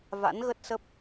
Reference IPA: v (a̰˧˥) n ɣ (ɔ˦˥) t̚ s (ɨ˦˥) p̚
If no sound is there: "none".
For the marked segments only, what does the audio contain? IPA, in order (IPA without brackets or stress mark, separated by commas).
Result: a̰˧˥, ə˦˥, ə˦˥